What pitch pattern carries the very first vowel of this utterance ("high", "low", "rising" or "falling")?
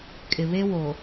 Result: low